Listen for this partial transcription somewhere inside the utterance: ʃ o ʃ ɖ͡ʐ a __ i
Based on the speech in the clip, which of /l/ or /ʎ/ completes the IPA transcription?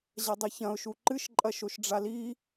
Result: l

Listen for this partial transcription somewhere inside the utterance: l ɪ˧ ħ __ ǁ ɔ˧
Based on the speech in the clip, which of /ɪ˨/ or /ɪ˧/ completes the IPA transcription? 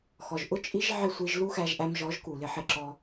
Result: ɪ˧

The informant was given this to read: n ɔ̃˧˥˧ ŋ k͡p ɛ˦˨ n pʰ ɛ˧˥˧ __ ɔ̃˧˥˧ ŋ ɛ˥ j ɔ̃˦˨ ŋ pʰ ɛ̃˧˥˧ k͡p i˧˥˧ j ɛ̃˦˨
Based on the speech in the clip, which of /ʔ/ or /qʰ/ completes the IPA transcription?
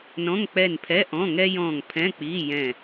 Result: ʔ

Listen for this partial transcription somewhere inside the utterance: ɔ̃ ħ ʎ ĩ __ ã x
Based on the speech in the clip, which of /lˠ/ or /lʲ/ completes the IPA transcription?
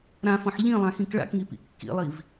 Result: lˠ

